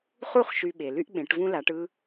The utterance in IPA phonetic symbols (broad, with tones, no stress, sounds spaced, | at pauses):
χ u˥˩ χ ʃ y˧ ɓ e˩ l y˥ ʔ ɓ ẽ˩˥ ʈ v ũ˥ l a˩˥ ʈ ɯ˥